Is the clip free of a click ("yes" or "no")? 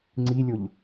no